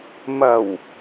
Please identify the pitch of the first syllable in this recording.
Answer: low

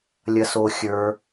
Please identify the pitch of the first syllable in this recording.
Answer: low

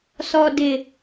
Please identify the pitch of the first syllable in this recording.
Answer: low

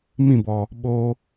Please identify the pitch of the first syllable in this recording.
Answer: falling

